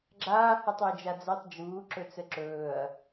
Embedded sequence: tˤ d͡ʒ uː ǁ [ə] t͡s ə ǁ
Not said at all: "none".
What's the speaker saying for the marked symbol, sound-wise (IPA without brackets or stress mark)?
ɵ